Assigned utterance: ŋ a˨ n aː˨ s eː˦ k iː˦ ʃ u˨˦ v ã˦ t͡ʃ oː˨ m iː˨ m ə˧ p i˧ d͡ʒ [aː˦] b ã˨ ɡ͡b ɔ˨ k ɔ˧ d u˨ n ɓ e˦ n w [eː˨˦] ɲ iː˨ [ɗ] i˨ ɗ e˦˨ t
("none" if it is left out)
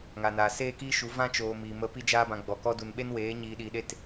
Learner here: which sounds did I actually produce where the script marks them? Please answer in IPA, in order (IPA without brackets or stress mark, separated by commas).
aː˧, eː˨˦, ɗ